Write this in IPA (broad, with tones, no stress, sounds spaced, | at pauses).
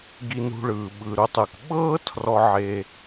ɡ i˨ n ṳ˨ ɭ ɯː˩ ɓ ɯ˩ ɾ u˨ tˤ ɯ˩ k ɓ ɤː˥ tʰ r ɔ˨ ʕ e˨